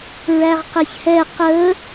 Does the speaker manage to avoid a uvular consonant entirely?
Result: no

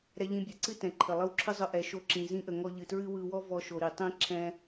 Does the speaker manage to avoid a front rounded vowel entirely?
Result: yes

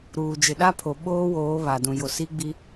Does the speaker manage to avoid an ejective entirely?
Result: yes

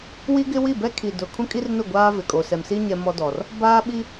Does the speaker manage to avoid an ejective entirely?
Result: no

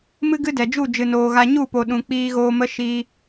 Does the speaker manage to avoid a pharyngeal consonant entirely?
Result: yes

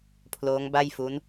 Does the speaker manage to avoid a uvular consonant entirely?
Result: yes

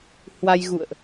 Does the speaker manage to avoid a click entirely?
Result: yes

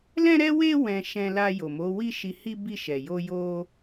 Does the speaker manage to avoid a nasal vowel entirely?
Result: no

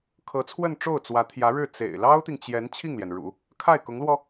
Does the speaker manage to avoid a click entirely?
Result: yes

